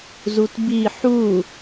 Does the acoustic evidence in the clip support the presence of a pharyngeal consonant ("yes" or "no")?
yes